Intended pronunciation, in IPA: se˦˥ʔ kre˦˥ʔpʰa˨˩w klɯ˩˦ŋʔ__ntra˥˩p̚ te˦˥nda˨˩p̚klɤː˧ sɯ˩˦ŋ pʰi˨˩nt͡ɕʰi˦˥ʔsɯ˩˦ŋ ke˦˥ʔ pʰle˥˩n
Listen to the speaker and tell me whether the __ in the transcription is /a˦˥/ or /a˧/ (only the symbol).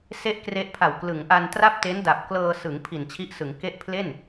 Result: a˧